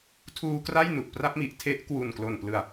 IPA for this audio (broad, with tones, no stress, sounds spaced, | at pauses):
tʰ uː˧ k r a˥˩ j n u˨˩ ʔ p r a˦˥ p̚ m i˨˩ ʔ tʰ e˦˥ ʔ k w u˨˩ n k l o˨˩ n p l ɯ˨˩ a̯